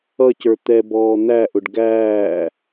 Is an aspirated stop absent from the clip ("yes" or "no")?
yes